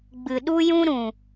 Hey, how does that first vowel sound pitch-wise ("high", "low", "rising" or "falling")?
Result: low